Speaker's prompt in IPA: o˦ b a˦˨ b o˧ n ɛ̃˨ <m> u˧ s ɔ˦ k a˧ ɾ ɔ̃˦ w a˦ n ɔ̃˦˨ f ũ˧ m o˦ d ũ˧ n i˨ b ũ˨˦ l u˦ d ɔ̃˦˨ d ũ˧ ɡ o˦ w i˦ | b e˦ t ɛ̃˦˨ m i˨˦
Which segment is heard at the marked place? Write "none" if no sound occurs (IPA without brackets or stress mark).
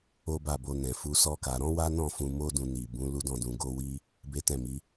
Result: f